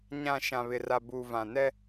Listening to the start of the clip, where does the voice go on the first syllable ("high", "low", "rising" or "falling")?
falling